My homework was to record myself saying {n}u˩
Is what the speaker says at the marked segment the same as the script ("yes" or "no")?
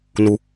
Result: yes